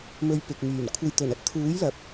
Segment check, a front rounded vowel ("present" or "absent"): present